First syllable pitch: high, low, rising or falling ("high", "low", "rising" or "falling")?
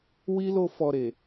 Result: high